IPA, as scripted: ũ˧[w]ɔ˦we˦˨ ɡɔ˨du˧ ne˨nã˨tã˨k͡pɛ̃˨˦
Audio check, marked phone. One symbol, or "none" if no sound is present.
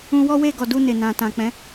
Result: w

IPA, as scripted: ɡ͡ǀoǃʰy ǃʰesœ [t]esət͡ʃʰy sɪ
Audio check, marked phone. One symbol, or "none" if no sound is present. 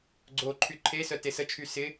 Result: t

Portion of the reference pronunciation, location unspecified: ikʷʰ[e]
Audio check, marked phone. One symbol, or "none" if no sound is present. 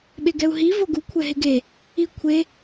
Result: e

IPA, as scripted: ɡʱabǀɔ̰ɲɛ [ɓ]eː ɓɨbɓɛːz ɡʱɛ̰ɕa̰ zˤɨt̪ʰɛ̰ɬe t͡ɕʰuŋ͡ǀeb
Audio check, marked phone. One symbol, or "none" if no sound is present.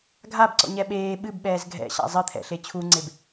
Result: ɓ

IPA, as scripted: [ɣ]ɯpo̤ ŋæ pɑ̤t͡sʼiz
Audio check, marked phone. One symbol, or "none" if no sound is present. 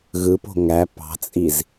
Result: ɣ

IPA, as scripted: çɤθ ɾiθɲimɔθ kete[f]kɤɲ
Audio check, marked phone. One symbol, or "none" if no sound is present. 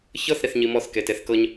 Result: θ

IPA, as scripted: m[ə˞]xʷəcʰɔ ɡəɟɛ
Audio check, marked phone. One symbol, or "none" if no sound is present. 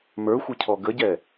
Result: ə˞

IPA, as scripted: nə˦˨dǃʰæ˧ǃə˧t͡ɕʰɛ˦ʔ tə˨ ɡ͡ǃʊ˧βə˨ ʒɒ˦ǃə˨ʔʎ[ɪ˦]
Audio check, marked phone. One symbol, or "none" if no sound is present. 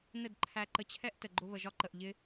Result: ɪ˦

